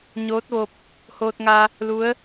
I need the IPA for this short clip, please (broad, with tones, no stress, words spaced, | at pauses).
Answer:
ɲoː˧˥t̚ʋo˧p̚ | hoː˧t̚ŋa˧ | lu˧˥ə̯